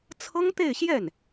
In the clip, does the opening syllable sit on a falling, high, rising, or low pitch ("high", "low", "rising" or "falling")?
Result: high